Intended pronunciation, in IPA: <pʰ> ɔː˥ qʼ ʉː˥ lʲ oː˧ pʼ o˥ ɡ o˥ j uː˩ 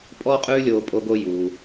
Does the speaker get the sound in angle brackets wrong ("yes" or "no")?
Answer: yes